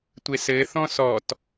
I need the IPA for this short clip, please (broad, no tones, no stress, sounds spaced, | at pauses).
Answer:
tʷ e s ɘ θ ɔ̃ s ɔ t